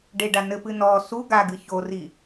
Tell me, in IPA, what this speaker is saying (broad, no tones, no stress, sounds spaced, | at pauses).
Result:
ɖ e ɖ a n ɘ p ɨ n ɔ s u ɡ a ɡ ɨ ç o r i